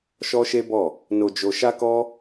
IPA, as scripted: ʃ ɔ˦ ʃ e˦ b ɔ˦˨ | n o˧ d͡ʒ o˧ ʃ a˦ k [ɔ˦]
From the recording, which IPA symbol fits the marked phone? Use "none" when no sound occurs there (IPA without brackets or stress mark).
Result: ɔ˦